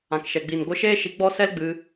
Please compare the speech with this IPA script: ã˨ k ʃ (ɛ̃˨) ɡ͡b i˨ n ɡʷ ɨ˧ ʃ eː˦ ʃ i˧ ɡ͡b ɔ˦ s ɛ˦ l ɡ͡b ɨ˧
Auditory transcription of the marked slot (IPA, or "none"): ɛ˨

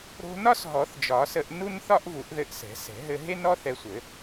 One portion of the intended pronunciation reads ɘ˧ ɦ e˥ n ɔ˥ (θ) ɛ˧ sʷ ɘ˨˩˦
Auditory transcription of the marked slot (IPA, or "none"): θ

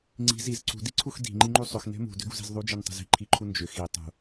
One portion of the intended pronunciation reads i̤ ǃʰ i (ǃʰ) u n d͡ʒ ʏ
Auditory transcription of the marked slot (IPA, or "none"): ǃʰ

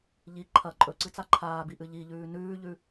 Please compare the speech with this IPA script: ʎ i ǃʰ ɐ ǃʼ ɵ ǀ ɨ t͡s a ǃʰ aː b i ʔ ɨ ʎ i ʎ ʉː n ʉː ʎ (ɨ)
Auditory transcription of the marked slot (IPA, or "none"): ʉ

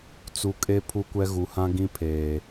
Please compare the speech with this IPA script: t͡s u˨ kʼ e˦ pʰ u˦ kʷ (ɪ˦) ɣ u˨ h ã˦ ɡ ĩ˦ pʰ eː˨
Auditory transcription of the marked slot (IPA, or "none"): ɛ˦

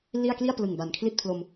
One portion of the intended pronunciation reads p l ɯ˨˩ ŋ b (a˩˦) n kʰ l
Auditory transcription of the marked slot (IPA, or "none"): a˨˩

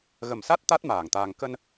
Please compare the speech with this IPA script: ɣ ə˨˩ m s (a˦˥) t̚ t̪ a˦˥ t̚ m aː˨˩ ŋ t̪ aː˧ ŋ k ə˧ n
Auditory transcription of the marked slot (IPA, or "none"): a˦˥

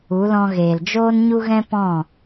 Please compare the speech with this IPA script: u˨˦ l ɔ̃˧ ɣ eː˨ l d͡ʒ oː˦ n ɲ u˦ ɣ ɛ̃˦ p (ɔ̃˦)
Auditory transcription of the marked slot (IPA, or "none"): ɔ̃˦˨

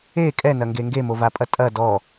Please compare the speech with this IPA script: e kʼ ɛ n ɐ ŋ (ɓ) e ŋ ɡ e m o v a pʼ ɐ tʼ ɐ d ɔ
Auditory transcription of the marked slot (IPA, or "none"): ɡ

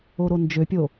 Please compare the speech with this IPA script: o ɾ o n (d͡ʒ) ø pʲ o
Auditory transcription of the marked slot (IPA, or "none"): d͡ʒ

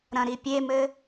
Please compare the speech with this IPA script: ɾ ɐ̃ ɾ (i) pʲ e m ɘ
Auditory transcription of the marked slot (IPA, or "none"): i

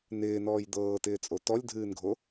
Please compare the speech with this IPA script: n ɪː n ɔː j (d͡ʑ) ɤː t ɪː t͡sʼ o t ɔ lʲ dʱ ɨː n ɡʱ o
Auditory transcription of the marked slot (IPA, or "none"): d̪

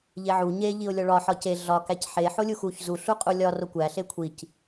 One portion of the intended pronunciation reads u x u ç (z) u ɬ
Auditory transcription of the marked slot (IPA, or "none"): z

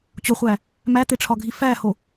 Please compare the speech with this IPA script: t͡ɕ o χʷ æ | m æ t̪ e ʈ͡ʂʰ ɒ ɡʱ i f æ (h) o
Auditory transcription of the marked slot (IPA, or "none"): h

